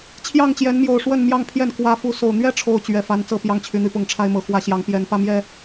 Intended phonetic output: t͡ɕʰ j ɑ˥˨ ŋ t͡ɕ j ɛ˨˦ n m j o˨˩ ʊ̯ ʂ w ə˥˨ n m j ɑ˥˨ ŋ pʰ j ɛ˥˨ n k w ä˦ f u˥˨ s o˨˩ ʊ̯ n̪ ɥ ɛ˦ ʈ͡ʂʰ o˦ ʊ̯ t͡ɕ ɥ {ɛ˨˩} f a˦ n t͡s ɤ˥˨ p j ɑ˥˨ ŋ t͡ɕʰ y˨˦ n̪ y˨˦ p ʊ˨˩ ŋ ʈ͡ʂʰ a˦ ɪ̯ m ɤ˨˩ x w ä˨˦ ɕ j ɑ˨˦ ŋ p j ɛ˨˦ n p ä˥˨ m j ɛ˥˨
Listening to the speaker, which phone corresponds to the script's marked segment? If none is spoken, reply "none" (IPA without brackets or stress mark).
ɛ˨˩